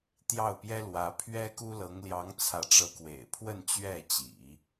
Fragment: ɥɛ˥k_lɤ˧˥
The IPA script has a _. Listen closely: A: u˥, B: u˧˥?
A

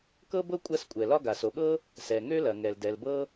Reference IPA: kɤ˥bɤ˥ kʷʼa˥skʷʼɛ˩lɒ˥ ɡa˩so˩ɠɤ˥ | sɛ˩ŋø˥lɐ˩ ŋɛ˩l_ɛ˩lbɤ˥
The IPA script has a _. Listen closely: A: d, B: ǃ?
A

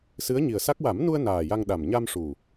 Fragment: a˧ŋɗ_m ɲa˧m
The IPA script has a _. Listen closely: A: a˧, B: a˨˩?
B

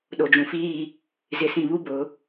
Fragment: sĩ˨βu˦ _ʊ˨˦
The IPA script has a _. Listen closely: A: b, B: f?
A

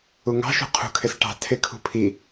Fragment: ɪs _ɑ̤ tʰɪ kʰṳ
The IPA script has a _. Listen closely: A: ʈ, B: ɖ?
A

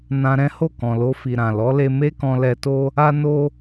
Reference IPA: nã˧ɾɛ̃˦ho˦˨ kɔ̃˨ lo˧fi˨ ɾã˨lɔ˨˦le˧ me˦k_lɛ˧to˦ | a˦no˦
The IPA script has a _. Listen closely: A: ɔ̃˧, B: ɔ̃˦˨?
A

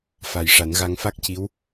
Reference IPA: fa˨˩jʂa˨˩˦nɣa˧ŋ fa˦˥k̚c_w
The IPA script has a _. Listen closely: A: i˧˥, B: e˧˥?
A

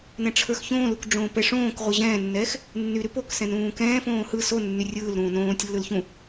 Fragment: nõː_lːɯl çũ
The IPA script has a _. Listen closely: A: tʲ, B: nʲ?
A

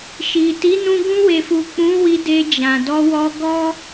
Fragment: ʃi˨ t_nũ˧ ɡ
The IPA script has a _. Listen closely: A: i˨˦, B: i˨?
A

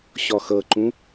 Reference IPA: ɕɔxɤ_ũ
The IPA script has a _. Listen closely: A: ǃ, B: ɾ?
A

